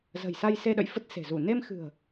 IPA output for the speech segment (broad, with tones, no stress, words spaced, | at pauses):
zə̤˨˩jsa˧jse˧ɗə̰˧˨j fə˦˥t̚se̤˨˩ zu˧˩ ne˧mxɨ̤˨˩ə̯